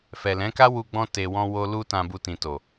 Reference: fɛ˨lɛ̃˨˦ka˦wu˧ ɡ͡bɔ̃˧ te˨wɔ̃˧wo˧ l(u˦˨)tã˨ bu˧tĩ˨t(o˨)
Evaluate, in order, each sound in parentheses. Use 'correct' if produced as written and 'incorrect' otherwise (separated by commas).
incorrect, correct